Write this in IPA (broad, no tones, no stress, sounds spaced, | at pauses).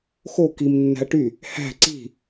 x o k i m nː æ̤ ɐ̯ ʈ y | h æ̤ ǀ i̤